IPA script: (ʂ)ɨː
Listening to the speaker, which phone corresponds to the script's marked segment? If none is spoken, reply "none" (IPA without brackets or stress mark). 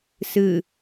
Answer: s